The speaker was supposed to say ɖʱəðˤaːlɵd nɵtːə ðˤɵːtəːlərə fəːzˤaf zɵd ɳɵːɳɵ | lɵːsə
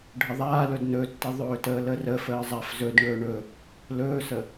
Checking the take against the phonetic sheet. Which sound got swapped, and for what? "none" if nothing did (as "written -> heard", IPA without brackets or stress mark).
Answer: none